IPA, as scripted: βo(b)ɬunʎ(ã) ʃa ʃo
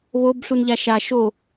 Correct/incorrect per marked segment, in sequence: correct, incorrect: a

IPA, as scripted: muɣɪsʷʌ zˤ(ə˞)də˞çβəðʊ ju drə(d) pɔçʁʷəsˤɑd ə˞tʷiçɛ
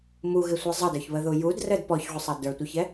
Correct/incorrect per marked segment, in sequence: incorrect: ʌ, correct

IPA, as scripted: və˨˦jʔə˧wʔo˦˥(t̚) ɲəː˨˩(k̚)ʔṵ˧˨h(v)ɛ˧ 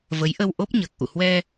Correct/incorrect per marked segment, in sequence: incorrect: p̚, correct, incorrect: w

